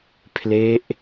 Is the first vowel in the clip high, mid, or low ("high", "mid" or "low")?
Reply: mid